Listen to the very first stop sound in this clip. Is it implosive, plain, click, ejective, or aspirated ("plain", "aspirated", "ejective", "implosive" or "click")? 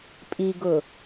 ejective